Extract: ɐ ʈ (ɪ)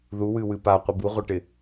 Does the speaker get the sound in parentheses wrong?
no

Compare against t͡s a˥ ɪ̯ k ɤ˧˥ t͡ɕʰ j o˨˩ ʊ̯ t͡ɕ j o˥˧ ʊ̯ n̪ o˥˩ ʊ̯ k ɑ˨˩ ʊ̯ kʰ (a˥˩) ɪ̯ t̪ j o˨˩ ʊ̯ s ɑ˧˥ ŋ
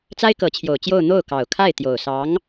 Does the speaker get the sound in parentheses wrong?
no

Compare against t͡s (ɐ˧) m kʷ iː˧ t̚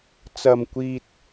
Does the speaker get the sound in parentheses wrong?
no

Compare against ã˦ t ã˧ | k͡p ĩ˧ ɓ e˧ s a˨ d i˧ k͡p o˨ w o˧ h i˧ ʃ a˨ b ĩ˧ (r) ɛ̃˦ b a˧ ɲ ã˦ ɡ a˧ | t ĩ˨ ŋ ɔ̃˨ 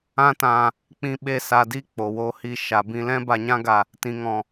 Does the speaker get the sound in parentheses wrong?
yes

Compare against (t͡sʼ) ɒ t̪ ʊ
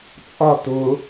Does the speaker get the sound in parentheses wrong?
no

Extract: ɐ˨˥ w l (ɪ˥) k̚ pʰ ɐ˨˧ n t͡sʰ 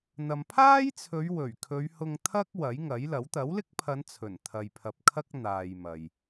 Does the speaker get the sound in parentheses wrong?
no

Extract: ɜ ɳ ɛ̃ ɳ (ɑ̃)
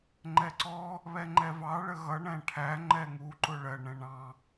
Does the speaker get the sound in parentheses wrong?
no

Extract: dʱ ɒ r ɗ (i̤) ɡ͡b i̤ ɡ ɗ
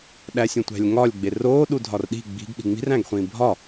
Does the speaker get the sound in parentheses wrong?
no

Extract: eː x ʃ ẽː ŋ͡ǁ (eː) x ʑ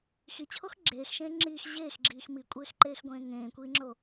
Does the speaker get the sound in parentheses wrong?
yes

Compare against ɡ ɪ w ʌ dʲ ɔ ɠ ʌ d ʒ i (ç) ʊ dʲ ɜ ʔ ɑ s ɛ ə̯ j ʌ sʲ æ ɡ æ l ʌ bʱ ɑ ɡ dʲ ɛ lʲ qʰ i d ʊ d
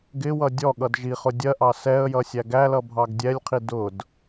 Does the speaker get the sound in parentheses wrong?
yes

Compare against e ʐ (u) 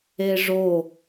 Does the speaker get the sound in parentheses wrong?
yes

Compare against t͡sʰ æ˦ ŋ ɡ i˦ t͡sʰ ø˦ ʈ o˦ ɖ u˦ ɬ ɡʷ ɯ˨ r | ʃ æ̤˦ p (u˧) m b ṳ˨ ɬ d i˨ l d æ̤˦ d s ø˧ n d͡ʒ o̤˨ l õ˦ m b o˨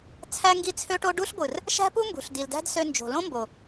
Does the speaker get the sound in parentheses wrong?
yes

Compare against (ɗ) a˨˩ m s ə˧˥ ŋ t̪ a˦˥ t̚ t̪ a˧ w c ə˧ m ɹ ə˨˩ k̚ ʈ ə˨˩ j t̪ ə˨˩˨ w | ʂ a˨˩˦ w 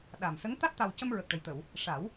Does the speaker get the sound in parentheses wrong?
no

